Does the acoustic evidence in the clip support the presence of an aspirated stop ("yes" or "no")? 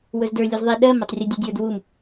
no